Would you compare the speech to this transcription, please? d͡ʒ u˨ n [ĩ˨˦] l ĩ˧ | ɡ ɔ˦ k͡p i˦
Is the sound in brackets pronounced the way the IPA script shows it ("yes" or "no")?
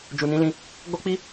yes